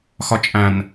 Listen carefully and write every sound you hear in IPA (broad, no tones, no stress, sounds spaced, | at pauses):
x ɒ t͡ʃʼ æ̃ n